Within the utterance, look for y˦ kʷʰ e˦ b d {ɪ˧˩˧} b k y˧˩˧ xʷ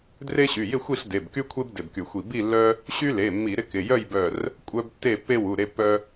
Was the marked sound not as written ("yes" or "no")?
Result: yes